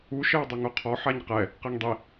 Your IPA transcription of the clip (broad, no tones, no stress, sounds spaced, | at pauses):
u ʃ ɛ w dˤ o ŋ o qʰ ɔ ħ a ɲ q ɛ | q e ŋ dˤ i